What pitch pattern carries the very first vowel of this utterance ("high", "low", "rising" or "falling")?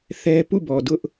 high